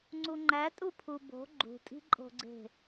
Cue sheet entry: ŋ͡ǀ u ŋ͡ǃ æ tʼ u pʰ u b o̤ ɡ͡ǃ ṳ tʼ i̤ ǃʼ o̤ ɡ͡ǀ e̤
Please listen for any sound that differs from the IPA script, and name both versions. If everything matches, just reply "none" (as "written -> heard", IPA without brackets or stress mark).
none